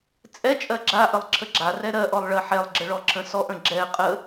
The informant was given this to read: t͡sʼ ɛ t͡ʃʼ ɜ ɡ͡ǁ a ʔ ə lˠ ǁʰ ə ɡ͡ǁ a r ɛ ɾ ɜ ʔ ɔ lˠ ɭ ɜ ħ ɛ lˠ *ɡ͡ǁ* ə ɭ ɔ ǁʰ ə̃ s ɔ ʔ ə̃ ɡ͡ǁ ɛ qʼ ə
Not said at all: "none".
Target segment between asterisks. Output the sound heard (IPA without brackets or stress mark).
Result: ɡ͡ǁ